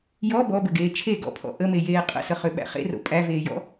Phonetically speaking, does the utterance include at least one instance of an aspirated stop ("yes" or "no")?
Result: yes